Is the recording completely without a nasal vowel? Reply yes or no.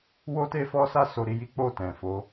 no